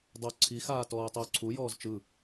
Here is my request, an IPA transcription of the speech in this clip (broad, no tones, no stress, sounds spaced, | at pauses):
dˤ ɵ ǀʰ i x aː t ɔː y̯ tˤ i u̯ ǀʰ u j ɔː z t͡ʃ ɯ